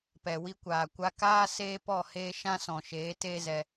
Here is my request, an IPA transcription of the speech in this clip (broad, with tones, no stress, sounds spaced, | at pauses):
p ɛ˨ w i˧ kʷ aː˨ kʷ a˧ k aː˦ s eː˦ p ɔ˦˨ h eː˦ ʃ ã˦ s ɔ̃˨ ʃ eː˨˦ t eː˦ z ɛ˧